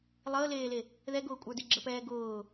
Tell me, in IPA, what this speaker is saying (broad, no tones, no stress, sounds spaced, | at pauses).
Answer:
lˠ əː l eː l e | ð ɛ ɡ ʊː kʷʼ ə˞ d e ɡ͡ǁ ə p ɛː ɡ ʊː